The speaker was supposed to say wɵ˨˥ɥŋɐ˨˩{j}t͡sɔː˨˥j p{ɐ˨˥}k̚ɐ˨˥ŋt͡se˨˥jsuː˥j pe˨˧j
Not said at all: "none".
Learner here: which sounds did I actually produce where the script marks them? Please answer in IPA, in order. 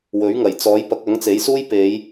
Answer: j, ɐ˨˥

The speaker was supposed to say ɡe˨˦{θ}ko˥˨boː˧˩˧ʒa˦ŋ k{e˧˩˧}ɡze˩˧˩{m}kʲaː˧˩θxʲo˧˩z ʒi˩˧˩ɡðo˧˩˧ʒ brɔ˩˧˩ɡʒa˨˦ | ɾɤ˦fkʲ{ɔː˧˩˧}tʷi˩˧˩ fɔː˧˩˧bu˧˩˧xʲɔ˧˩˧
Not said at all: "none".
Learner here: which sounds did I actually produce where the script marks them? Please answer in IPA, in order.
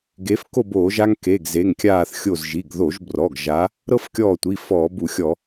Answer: f, e˩˧˩, ŋ, ɔː˧˩

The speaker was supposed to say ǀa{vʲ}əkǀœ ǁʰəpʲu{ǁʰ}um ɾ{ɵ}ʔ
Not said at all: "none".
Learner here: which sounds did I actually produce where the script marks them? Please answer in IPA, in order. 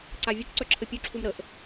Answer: vʲ, ǁʰ, ə

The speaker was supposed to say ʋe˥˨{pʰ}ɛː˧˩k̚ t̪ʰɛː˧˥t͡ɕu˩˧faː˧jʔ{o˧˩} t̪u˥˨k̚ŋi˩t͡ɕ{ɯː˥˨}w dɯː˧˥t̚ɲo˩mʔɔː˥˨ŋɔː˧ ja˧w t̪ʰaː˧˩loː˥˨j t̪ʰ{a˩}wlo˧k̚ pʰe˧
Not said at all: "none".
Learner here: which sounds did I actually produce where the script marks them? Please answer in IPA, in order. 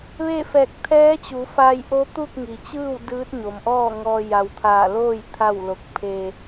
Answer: f, o˧˥, ɯː˥˨, a˥˨

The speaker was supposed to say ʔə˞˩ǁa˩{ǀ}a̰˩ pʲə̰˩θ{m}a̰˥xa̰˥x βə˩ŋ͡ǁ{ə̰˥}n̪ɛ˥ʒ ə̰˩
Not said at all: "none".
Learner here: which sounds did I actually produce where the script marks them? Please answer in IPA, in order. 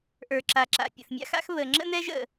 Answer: ǁ, mʲ, ə̰˥

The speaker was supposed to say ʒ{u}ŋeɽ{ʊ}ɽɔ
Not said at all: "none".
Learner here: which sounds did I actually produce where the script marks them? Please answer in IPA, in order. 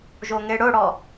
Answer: o, ʊ

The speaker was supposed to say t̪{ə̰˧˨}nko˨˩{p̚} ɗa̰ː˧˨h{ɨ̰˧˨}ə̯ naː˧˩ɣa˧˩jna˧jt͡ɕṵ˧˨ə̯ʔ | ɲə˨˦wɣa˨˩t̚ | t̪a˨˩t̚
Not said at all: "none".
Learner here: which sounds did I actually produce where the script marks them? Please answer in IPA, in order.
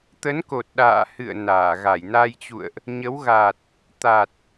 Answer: ə˨˦, t̚, ɨ̰˧˨

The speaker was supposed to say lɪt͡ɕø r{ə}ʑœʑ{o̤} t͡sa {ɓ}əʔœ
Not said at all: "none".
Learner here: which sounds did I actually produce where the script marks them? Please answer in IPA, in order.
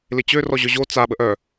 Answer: ɔ, o, ɓ

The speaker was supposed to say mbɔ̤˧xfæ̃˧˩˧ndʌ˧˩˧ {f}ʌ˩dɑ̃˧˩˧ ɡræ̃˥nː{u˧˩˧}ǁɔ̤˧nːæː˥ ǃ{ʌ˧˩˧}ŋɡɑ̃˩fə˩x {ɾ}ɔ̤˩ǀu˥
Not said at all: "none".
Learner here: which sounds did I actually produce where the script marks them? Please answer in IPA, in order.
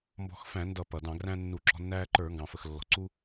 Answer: p, u˧˩˧, ə˞˧˩˧, lː

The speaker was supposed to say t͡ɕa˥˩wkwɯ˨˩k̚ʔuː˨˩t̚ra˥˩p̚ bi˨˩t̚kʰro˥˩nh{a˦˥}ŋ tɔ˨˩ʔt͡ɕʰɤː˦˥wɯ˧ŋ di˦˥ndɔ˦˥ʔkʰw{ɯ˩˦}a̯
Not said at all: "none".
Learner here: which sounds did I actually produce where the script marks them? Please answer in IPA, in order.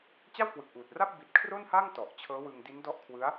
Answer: a˥˩, ɯ˦˥

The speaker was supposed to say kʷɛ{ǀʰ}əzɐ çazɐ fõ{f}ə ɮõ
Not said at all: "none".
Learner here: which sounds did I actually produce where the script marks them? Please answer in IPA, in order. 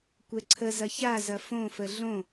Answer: ǀʰ, f

